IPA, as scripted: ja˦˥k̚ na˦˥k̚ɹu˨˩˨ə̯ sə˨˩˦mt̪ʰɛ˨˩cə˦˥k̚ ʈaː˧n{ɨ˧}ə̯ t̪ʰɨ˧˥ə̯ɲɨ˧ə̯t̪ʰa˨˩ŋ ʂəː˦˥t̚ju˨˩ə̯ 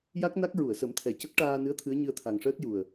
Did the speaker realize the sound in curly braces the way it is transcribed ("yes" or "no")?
no